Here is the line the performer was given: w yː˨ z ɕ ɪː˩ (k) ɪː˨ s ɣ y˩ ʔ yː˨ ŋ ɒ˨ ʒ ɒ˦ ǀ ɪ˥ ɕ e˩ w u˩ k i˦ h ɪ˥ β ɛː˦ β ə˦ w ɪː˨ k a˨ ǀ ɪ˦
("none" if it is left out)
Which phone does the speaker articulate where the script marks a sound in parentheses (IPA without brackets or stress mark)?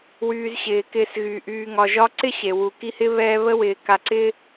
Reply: k